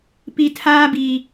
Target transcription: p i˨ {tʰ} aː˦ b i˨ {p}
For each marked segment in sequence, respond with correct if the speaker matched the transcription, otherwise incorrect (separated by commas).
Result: correct, incorrect